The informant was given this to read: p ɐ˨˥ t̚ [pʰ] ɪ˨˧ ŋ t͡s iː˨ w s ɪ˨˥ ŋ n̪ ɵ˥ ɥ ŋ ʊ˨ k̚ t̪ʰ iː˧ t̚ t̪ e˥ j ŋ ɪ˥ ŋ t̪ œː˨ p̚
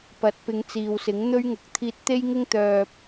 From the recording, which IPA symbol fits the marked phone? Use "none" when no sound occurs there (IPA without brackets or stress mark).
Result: p